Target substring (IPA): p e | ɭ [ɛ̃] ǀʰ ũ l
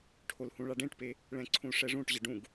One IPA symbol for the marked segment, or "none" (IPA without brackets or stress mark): ɛ̃